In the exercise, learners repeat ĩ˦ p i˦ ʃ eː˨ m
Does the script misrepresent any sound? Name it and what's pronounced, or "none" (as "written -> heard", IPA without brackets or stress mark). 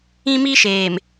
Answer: p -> m